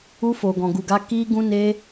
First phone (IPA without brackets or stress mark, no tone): u